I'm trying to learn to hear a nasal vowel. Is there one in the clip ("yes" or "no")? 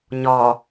no